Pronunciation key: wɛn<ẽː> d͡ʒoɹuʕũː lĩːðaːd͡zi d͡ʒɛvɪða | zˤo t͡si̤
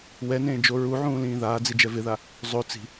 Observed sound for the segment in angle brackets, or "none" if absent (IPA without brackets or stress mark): ẽː